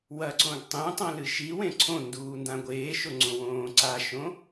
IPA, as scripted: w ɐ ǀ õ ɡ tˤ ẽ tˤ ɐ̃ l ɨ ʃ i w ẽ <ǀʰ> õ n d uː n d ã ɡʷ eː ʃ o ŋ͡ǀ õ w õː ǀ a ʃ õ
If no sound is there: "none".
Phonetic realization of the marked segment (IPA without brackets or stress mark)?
ǀʰ